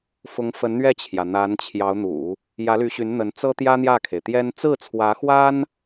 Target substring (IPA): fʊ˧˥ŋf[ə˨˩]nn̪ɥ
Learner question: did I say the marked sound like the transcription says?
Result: no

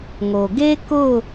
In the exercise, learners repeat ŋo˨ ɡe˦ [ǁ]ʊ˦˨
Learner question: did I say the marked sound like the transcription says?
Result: no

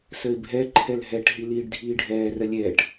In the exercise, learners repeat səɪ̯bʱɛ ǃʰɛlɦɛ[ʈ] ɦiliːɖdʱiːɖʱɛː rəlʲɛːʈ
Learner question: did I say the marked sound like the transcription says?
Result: yes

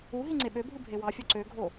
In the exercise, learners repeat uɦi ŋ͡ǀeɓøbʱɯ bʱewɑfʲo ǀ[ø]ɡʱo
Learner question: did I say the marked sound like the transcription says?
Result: yes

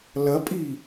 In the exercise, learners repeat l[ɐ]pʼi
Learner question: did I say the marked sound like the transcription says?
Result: yes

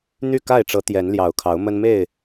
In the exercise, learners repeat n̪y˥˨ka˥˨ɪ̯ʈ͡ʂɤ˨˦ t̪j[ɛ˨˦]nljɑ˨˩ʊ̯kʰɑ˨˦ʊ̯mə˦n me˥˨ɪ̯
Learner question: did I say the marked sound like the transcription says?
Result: yes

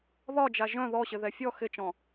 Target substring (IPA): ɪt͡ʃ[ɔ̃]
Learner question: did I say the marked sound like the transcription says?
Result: yes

